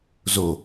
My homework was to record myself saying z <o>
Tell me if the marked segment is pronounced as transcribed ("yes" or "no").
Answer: yes